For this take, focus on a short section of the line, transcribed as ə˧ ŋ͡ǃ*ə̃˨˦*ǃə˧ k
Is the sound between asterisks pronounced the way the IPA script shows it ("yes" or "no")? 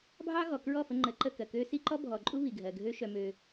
no